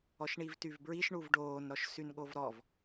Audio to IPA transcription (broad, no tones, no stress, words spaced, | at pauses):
ɔʃɳivtyvbɹiʃ ɳuvɖoːn ɾɔʃsynɠovɾɔv